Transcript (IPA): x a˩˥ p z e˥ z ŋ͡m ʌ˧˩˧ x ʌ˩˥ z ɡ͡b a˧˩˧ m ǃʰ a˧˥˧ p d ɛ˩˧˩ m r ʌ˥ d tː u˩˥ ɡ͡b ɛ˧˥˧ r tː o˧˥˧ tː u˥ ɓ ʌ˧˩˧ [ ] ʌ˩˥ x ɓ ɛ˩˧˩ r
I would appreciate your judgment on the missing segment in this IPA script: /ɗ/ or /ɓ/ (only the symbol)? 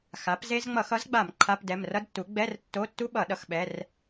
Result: ɗ